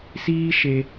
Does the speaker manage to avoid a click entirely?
yes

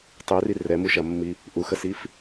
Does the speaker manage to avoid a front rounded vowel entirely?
no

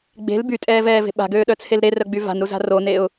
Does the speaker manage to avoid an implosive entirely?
no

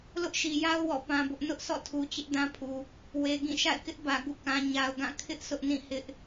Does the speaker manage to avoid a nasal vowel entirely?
no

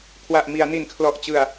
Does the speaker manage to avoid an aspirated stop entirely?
no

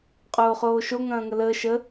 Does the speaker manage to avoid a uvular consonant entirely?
no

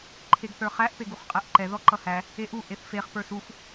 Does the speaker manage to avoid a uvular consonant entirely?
no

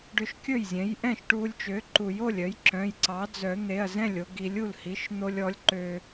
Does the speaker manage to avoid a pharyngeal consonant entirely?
yes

